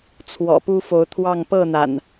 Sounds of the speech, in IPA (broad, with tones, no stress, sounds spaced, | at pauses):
t͡sʰ w ɔ̰˨˩ p u˦ f o˨˦ ʊ̯ t̪ʰ w ɑ˥˨ ŋ p ɤ˥˨ n̪ a̰˨˩ n